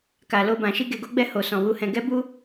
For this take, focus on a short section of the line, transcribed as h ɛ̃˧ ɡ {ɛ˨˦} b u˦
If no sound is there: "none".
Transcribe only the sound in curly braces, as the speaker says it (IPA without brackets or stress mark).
ɛ˦